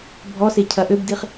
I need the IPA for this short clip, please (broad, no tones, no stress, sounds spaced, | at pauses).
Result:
bʱ ɔ s e cʰ ɐ ʔ ø b d i χ